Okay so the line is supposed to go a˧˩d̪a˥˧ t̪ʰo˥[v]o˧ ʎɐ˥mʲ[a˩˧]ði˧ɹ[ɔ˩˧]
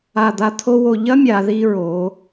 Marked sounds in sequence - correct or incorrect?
incorrect, correct, incorrect

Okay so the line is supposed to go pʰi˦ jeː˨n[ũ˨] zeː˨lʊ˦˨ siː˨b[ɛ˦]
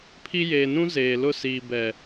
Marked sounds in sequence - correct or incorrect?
incorrect, incorrect

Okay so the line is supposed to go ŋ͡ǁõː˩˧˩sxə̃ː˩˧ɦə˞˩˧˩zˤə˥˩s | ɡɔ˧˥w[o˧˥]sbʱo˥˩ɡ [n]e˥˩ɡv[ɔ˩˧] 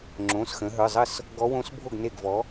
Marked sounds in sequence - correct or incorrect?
incorrect, correct, incorrect

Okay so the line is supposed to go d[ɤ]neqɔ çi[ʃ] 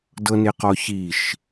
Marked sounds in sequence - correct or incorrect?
correct, correct

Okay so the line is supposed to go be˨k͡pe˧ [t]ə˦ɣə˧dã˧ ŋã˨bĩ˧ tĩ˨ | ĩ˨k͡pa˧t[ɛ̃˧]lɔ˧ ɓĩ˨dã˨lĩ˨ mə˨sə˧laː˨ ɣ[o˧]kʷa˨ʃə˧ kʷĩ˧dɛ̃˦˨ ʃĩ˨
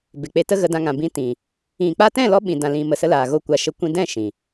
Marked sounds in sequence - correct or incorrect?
correct, incorrect, correct

